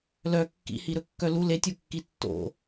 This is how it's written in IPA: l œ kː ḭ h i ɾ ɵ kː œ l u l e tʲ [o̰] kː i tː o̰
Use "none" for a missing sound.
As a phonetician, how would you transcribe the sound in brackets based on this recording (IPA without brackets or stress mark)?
o